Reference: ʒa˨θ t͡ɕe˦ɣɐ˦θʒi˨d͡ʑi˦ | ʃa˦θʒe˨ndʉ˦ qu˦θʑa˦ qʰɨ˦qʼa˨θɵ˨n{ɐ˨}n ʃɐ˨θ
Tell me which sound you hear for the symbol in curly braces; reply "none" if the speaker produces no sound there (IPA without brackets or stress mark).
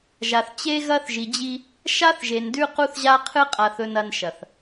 ɐ˨